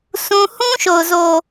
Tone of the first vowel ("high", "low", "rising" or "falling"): high